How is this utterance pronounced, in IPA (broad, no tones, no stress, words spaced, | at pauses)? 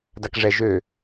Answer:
dakʐɛ ʒø